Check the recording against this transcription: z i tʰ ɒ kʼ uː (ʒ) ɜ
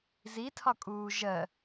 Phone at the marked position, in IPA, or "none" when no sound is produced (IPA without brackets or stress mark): ʒ